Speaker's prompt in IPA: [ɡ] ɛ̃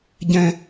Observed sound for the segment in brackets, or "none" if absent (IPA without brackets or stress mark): ɟ